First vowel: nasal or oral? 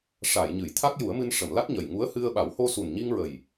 oral